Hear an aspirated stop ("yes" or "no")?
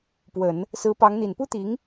no